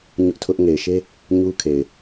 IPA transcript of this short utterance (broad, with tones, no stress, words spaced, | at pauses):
ɲʊ˦ʔtʰʊ˦ʔ ŋe˨ɪ̯ʃe˦ | ɲu˦kʰe˨ɪ̯